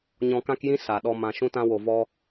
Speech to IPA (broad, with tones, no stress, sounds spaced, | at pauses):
ɲ ɔ̃˧ k ã˦ k j ĩ˦ s a˨ ɗ ɔ˧ m ã˧ ʃ ũ˦ t ã˦ w o˧ v ɔ˦